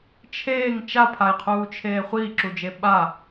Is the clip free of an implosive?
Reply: no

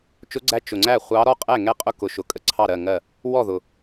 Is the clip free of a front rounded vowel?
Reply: yes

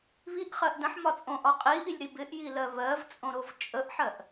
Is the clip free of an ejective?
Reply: no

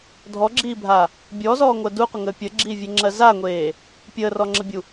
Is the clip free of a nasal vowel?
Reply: yes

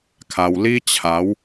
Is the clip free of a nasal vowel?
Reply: yes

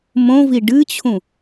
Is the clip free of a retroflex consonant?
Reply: no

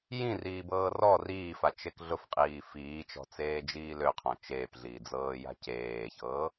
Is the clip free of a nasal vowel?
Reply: no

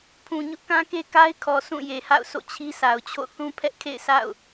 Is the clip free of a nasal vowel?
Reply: no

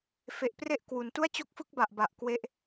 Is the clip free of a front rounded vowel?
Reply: yes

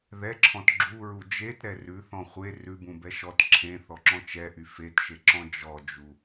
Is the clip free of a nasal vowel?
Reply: no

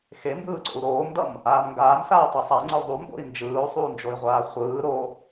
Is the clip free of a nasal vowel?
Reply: yes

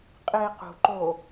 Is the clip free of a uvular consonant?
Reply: no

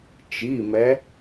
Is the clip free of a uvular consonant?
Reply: yes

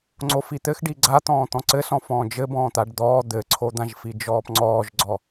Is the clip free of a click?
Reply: no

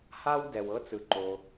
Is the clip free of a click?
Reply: no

